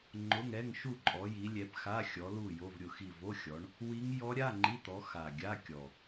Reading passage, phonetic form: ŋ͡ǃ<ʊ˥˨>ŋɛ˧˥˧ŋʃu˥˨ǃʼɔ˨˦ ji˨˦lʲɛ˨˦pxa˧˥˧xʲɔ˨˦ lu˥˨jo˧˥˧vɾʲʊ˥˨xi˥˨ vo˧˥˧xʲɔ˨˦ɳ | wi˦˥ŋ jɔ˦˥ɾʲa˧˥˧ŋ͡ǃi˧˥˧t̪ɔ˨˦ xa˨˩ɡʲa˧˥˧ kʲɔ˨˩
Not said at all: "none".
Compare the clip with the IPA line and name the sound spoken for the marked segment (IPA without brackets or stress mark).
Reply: ʊ˧˥˧